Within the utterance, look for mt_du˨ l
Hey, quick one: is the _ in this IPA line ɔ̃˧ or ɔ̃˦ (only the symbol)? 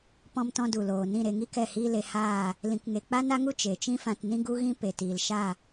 ɔ̃˧